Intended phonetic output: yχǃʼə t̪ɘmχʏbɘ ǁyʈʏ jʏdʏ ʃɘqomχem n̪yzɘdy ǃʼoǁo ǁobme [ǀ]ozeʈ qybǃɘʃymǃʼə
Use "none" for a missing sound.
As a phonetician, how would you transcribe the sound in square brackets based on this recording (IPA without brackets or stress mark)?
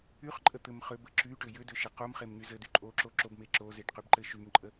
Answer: ǁ